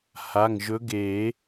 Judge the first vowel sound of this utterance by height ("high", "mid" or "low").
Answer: low